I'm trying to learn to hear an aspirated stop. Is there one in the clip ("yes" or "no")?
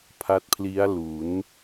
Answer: yes